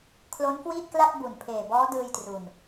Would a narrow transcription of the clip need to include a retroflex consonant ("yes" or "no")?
no